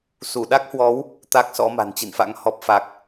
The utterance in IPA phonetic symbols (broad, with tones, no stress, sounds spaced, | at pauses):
s u˧˩ ɗ a˦˥ k̚ h w ɔ˨˦ w | t̪ a˦˥ k̚ s ɔ̰˧˥ m a̤˨˩ n t͡ɕ ḭ˧˨ n f a̰˧˥ ŋ h ɔ˨˩ p̚ f a˨˩ k̚